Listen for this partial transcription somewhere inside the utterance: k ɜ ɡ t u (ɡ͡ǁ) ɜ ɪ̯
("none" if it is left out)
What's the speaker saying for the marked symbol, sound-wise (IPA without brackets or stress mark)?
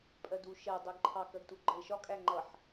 ɡ͡ǃ